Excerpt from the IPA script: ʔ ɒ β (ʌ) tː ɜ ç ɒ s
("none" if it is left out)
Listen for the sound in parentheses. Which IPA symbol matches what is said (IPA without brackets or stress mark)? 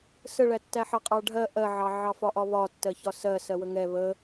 ɒ